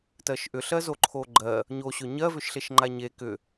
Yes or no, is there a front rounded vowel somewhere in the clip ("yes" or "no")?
yes